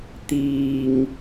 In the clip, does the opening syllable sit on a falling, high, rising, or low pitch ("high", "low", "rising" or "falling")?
low